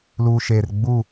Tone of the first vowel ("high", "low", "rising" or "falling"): low